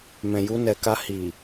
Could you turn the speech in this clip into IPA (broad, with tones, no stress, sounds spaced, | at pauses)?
m ɛ̃˨ j u˧ n ɛ˨ k a˧ h i˨